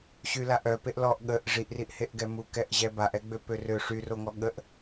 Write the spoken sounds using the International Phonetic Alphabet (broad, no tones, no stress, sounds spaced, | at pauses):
ɕ y l a ʔ œ p e ʔ l ɔ ʔ ɠ ə ʔ ʐ i ʔ r i ʔ h e ʔ ɡ ɛ m u k ɛ ʔ ʑ ɛ b a ʔ ɛ ɡ͡b ø p ø r ø ʂ y r o ŋ ɔ ɠ ə ʔ